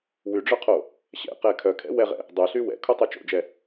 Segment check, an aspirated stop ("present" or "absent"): present